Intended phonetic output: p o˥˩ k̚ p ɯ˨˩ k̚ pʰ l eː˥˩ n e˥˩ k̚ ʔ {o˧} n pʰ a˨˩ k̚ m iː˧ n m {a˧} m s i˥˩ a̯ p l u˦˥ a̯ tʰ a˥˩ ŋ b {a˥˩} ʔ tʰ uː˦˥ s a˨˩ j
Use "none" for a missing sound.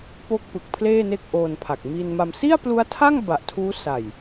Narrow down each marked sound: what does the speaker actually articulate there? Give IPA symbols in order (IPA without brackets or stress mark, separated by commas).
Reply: oː˧, a˧, a˨˩